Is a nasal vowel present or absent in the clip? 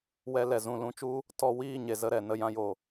present